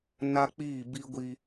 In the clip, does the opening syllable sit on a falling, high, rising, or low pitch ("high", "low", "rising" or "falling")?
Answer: high